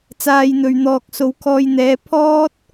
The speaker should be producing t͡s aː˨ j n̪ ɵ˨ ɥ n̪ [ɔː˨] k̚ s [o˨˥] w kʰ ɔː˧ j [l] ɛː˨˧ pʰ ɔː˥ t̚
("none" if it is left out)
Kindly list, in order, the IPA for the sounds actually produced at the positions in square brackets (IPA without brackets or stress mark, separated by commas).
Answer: ɔː˨, o˨˧, n̪